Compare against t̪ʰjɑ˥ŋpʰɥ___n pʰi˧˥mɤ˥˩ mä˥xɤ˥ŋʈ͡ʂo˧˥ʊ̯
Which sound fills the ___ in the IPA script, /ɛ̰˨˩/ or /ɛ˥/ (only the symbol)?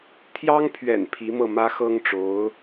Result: ɛ̰˨˩